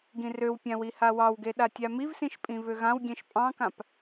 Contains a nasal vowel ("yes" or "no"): yes